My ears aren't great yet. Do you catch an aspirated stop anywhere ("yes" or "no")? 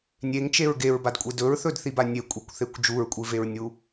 no